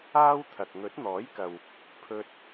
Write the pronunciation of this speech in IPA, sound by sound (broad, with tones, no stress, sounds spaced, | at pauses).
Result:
aː˥ w t̪ʰ ɐ˨ k̚ ŋ ɵ˨˥ t̚ n̪ ɔː˨˥ j k ɐ˨ w | pʰ ɵ˧ t̚